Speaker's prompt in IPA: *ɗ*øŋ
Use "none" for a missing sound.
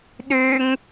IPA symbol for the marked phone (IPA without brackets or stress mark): ɗ